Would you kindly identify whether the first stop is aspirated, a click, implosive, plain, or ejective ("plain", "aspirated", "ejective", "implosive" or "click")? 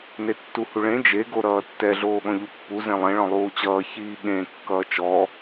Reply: plain